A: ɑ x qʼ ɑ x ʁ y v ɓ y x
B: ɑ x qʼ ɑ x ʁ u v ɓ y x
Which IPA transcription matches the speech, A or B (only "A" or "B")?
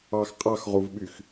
B